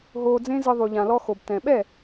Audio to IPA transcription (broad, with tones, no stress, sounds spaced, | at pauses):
ɦ oː˧ d͡z ẽ˦ z ɨ˧ ðˤ u˨ ʎ ã˨ l ɔ˧ x o˨ b t ɛ̃˨ ɓ ɛ˦˨